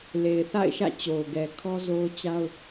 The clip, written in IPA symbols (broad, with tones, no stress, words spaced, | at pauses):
le˨ɪ̯θa̰˦˨ɪ̯ʃä̰˦˨ t͡ɕo˨ʊ̯ɡɛ˨ kʰɔ˦zo˦ʊ̯t͡ɕa˦ʊ̯